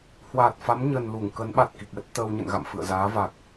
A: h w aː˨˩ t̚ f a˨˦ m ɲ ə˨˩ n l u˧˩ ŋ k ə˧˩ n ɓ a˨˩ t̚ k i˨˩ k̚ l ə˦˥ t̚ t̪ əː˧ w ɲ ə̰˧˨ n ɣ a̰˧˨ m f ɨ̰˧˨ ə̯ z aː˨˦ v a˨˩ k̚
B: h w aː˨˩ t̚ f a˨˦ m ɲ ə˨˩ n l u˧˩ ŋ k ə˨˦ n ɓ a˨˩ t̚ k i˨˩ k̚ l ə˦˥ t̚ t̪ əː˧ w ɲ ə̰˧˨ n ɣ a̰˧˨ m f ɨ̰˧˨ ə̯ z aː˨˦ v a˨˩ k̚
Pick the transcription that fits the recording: B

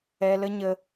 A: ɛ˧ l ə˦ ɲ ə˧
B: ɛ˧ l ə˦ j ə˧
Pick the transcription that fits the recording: A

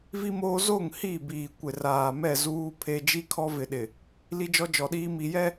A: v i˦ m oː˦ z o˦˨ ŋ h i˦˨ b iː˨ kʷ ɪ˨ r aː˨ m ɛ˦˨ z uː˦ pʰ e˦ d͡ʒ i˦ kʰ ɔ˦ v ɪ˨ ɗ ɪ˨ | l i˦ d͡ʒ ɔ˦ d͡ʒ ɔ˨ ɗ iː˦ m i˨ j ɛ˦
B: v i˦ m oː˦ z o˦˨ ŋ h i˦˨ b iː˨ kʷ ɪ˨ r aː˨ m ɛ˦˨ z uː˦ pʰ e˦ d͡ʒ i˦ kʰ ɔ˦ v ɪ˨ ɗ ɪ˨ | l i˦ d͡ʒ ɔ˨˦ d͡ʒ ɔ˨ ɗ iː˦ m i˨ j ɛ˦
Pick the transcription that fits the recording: A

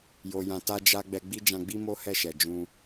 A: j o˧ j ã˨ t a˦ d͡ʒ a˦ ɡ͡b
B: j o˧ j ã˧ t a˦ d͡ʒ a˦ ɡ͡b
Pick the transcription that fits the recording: B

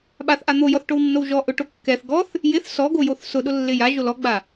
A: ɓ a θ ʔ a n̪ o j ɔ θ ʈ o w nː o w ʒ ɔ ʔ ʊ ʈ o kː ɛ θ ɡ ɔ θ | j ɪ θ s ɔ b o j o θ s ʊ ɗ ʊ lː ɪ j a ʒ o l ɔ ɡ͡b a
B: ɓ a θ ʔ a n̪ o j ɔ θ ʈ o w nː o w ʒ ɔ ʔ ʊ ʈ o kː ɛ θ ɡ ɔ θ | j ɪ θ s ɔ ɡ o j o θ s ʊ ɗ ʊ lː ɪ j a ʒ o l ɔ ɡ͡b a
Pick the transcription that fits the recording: B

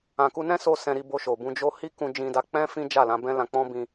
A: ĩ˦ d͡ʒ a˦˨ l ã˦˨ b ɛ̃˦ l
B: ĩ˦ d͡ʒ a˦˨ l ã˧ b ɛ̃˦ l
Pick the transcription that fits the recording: B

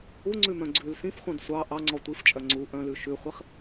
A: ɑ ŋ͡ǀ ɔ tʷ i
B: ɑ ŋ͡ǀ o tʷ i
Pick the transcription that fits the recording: A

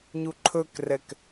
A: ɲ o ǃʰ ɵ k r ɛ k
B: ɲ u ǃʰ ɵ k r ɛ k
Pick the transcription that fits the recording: B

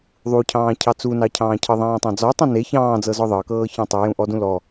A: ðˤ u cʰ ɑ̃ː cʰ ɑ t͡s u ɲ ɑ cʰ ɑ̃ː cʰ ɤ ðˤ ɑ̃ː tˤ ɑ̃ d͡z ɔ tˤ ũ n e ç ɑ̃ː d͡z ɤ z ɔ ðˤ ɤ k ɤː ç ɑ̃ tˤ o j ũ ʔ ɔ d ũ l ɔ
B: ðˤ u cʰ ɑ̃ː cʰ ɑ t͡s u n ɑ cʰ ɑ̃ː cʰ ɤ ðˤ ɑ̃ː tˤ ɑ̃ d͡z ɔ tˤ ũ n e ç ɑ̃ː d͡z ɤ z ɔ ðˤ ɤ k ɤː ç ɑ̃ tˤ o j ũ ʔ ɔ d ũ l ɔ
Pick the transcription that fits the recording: B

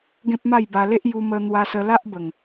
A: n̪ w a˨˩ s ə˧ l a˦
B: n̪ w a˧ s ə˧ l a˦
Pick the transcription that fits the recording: B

